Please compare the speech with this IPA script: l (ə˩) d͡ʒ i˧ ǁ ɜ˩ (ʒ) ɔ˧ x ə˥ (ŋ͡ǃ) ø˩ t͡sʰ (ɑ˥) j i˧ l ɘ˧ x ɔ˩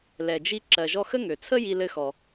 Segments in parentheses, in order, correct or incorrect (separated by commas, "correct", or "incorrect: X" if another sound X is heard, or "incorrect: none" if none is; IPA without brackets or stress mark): incorrect: ɛ˩, correct, incorrect: ŋ, incorrect: ə˥